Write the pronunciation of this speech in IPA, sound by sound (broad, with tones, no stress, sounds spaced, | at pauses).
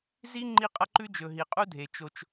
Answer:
z i˥ ŋ͡ǃ i˥ qʼ ɐ˥ ǃ ʉ˥ d͡ʒ ɵ˩ ɦ i˩ qʼ u˥ dʱ e˩ t͡ʃ o˩ t͡ʃ